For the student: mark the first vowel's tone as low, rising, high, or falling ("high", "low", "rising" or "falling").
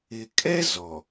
low